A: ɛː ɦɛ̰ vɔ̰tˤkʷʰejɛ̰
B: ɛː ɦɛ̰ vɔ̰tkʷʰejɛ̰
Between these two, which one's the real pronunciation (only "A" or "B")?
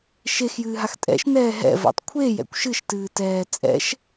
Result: A